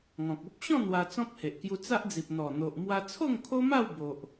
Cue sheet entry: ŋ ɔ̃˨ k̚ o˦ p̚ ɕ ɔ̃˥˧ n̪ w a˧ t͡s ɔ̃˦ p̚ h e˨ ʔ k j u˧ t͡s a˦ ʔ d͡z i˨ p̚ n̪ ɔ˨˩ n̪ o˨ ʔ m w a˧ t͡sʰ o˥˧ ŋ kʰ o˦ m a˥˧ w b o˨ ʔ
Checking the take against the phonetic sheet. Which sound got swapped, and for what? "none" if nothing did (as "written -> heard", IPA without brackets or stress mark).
none